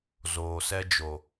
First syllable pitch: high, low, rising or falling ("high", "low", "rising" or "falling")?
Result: low